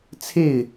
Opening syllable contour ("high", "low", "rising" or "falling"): falling